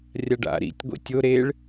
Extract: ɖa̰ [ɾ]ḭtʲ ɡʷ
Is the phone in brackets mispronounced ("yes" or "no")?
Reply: no